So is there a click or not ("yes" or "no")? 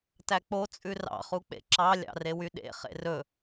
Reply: yes